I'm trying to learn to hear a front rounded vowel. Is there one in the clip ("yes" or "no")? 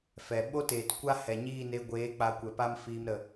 no